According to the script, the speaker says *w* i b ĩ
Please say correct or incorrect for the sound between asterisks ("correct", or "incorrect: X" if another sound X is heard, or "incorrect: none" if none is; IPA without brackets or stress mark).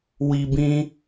correct